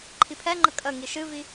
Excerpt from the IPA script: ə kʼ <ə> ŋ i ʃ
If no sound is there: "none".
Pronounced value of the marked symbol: ə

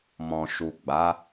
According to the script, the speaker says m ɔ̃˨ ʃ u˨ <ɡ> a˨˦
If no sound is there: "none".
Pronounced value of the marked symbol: ɡ͡b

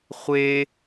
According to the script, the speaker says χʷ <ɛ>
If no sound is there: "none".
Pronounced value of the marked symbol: e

